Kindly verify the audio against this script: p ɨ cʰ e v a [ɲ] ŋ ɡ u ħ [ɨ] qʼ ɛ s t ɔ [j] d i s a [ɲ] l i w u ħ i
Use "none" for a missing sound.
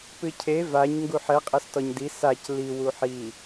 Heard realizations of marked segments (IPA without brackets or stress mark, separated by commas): ɲ, ɛ, ɲ, c